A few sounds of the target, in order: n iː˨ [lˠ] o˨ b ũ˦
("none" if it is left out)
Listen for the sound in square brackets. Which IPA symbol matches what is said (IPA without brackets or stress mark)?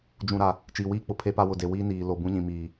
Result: l